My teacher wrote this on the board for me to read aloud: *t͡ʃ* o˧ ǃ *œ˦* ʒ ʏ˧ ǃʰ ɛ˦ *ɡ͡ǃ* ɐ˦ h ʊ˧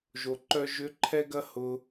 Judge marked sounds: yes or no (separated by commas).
no, yes, no